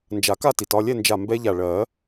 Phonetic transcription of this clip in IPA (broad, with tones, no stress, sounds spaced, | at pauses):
n d͡ʒ a˨˩˦ k a˥˨ t i˩ t ɒ˥˨ lʲ ɛ˥˨ n d͡ʒ a˧˩ m b ɛ˦˥ ʎ a˧˩ ɭ ɜ˨˩˦